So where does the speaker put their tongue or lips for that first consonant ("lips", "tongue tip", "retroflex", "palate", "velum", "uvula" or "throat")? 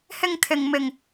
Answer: throat